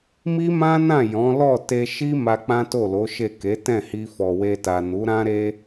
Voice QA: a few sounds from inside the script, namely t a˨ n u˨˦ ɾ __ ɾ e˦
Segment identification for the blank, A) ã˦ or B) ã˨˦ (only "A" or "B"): A